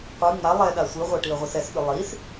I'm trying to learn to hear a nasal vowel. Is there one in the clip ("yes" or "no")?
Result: no